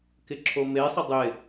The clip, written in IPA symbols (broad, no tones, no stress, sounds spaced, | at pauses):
k ɪ ǁʰ o m e sˤ ə dˤ ɪ